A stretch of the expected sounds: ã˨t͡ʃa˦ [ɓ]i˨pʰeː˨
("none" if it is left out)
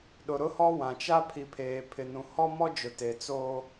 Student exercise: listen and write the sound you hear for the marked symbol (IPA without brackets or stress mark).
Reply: pʰ